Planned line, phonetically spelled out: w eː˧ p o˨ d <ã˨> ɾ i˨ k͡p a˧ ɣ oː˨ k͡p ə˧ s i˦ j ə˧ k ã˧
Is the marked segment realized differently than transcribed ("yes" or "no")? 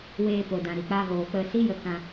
no